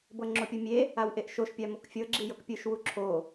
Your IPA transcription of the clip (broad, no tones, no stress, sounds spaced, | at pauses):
b ɤ ŋ͡ǁ o pʲ o mʲ e | a w ʔ e ʔ ʃ o ʃ pʲ a m o k fʲ ɤ ɡ͡ǁ i j ɤ k pʲ ɯ ʃ w u ǁʰ o